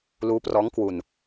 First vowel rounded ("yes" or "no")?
yes